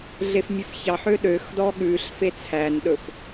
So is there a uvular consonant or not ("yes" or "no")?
no